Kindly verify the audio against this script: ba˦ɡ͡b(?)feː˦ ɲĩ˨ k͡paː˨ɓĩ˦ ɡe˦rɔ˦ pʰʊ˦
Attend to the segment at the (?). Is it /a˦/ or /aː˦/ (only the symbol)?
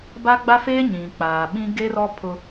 a˦